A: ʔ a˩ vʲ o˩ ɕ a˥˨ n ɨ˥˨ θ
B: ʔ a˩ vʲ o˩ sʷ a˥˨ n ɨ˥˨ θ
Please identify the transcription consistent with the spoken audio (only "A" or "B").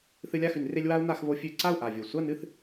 B